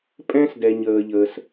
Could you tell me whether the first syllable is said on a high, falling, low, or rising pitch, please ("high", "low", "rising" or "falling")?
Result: high